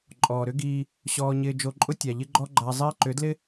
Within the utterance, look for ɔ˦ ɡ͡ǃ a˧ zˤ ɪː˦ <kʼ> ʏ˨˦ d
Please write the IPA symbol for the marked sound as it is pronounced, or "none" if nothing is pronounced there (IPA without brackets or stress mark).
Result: ǃ